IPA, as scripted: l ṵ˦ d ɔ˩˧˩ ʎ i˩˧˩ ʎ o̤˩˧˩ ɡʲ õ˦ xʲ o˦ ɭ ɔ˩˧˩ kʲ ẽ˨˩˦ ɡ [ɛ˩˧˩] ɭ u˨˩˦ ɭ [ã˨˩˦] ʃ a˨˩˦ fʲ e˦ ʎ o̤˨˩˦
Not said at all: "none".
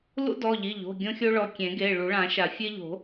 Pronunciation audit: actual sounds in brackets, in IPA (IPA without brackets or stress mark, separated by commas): e˩˧˩, ã˨˩˦